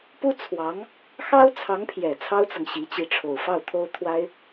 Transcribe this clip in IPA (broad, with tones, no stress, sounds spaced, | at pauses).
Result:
p u˥ t͡sʰ w ɑ˧˥ ŋ | x ɑ˥ ʊ̯ t͡sʰ ɑ˧˥ ŋ pʰ j ɛ˨˩ t͡sʰ ɑ˥ ʊ̯ t͡s ɤ˨ ŋ ɕ i˧˥ t͡ɕ i˧˥ ʈ͡ʂʰ o˨˩ ʊ̯ f ɑ˥˩ ʊ̯ t̪ʰ o˥ ʊ̯ t̪ʰ w a˥ ɪ̯